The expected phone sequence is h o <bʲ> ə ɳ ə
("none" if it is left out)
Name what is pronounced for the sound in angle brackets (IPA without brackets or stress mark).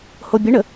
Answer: bʲ